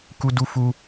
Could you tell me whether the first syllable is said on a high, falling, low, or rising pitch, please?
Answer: high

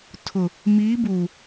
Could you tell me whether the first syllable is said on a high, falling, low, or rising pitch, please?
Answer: low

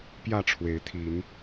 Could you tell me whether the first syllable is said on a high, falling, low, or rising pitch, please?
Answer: falling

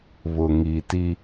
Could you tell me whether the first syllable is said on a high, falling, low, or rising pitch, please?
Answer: low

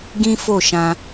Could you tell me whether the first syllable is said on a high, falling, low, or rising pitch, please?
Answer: high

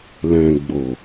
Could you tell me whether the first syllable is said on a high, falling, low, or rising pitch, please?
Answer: low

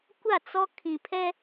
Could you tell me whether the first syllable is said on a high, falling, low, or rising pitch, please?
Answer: falling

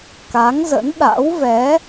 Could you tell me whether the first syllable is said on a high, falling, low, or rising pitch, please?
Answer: rising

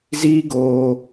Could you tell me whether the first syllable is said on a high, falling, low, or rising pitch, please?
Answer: high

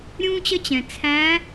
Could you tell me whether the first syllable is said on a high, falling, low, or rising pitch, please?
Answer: high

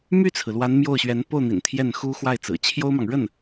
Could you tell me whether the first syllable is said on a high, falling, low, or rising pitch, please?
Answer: falling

